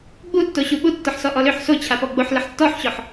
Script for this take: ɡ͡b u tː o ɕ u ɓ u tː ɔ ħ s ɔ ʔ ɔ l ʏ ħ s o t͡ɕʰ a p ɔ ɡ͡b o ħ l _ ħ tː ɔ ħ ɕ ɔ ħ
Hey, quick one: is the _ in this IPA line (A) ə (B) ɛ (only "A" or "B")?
A